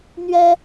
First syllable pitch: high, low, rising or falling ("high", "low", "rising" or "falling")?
high